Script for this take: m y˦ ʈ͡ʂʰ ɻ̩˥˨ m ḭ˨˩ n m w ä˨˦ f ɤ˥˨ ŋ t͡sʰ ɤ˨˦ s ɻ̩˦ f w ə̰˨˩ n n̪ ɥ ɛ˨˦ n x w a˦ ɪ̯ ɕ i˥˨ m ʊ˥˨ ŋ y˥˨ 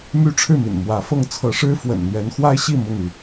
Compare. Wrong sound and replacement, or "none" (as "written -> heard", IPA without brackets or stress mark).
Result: s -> ʂ